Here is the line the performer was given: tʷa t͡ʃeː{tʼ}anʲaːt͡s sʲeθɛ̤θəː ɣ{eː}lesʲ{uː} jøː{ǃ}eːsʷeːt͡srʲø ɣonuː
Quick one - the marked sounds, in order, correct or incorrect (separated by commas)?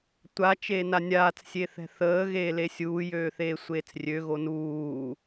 incorrect, correct, correct, incorrect